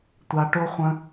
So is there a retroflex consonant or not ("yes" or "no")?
yes